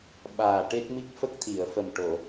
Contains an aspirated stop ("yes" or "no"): yes